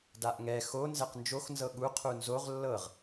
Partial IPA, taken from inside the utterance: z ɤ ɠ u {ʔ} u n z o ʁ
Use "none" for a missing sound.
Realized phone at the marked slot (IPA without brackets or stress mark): qʰ